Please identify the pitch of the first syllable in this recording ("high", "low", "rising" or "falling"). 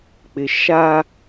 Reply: low